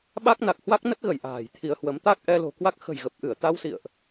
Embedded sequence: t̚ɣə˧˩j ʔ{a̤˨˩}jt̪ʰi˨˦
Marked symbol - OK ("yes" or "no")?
no